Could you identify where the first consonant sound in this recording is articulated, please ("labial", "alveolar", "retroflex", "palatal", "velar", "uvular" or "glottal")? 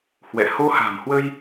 glottal